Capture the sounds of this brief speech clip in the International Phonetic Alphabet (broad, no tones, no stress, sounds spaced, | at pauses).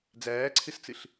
d͡z æː ǀʰ ɨ s t͡s ɨ ɬ